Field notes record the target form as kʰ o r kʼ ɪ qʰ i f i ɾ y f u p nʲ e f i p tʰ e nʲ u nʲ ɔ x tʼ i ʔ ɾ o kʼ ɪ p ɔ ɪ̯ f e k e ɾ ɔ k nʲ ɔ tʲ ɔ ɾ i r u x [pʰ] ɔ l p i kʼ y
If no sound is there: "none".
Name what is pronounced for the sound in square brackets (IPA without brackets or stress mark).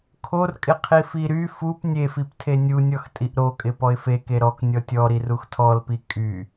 tʰ